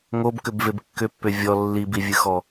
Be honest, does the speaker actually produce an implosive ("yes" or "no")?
no